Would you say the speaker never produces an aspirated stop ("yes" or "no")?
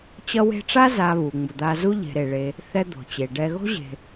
yes